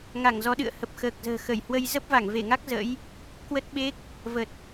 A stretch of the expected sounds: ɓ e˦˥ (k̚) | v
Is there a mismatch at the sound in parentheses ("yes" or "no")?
no